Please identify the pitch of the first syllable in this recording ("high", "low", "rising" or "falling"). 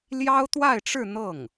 high